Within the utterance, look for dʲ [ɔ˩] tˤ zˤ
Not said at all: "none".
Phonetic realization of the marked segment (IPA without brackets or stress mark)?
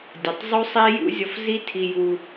o˩